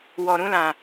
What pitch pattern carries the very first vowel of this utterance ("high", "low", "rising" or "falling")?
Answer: low